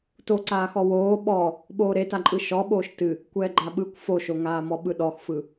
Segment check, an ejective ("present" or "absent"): present